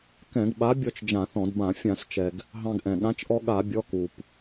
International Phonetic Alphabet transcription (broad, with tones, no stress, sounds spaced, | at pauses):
k ɛ̃˧˩˧ ɡ ɓ a˨˥ bʲ ɔ˧ t͡ʃ d͡ʒ ã˧˩˧ θ ɔ̃˧˩˧ d b ã˧˩˧ fʲ ã˧˩˧ s t͡ʃ ɛ˩ ɡ | ɦ ɑ̃˧ ɡ ʔ ɛ̃˩ ɠ ã˨˥ t͡ʃ ʔ ɔ˧ ɠ a˧˩˧ bʲ ɔ˩˧˩ k u˩ p